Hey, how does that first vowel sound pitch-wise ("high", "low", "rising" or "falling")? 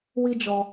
high